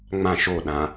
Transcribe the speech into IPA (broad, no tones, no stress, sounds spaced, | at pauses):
ŋ͡m ã ʃ o ɗ ã